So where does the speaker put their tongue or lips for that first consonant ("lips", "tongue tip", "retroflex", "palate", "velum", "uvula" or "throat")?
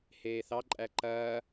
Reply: throat